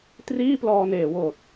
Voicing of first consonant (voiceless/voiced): voiceless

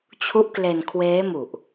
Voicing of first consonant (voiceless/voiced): voiceless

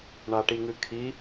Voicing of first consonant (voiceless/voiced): voiced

